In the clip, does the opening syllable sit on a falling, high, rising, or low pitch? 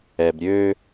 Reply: low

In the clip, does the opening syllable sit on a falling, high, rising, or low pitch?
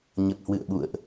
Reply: low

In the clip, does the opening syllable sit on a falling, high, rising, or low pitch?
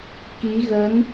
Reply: rising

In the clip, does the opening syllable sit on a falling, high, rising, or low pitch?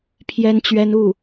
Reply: high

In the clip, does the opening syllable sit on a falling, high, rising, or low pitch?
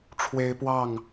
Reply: high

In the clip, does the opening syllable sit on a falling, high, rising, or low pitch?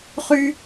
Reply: high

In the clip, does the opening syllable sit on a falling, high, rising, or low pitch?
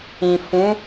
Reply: low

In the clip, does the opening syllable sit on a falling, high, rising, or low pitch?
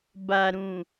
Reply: low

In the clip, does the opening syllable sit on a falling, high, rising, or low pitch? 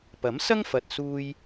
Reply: rising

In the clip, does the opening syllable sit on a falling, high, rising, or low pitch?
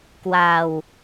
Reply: low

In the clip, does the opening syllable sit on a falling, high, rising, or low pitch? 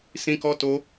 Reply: high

